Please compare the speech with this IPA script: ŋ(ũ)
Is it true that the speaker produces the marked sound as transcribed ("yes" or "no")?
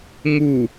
no